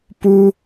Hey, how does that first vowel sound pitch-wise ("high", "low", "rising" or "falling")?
high